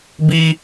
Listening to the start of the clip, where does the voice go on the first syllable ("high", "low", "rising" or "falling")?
high